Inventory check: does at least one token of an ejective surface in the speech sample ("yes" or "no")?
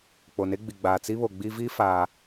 no